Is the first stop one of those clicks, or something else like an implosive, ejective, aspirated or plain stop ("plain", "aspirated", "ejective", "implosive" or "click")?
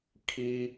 aspirated